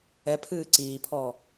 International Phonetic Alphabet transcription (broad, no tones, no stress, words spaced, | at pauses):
ɛpʰɨː ǀiːpʰɔː